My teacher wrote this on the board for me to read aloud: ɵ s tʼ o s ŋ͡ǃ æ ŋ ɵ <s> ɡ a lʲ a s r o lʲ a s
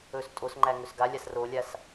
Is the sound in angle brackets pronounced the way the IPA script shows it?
yes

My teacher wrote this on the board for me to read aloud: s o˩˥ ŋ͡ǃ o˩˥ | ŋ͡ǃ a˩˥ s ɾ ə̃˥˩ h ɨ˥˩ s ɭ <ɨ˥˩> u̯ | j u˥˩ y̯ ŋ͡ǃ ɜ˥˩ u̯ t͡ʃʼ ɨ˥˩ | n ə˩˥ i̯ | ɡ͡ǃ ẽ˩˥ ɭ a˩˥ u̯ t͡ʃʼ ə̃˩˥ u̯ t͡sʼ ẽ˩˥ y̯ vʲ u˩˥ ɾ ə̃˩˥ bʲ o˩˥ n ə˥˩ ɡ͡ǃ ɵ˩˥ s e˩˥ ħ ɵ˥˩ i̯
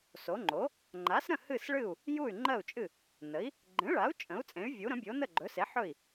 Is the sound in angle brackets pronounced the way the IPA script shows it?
yes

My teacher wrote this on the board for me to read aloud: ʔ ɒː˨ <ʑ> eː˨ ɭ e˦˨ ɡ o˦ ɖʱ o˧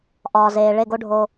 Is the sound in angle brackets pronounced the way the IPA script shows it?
no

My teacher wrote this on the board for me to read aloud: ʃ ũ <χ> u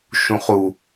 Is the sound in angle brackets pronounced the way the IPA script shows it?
yes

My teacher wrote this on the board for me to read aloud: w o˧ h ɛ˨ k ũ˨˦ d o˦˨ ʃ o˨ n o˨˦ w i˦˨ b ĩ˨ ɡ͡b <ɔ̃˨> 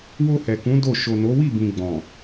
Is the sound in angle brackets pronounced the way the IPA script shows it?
yes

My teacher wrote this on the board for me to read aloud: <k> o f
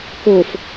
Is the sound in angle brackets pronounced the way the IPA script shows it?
yes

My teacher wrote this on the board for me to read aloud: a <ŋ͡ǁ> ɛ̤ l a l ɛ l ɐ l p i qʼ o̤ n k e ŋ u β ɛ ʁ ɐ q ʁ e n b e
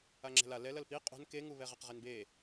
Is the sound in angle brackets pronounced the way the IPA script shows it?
yes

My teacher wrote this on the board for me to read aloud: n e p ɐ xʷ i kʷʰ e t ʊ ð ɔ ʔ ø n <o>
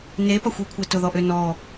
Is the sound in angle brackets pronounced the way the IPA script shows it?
no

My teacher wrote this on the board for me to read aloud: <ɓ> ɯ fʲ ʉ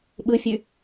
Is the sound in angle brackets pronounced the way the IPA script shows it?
yes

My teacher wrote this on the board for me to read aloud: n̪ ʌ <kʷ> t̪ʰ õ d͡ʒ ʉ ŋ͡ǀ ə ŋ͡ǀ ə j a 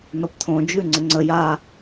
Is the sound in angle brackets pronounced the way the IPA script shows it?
no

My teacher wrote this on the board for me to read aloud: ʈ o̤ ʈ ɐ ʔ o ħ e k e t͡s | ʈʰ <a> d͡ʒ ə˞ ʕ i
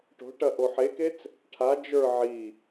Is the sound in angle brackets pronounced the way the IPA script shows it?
yes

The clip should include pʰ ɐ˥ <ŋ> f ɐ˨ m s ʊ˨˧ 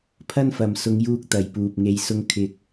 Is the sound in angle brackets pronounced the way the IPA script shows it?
no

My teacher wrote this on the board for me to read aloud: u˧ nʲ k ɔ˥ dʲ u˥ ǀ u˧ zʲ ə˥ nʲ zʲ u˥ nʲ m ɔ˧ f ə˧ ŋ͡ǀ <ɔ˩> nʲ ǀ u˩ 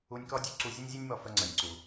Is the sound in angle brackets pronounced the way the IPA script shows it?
no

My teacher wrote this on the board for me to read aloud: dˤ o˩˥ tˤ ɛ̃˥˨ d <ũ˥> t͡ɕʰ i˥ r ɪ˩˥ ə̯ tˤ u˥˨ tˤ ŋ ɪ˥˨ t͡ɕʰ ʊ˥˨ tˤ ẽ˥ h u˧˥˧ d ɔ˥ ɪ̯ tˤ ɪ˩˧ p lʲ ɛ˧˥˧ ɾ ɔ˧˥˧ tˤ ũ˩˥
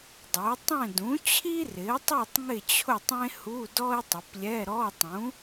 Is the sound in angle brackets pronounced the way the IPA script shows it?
no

